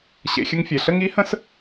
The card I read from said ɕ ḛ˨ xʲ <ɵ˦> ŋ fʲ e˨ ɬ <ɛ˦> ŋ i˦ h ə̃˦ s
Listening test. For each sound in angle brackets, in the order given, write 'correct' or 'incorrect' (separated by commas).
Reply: incorrect, incorrect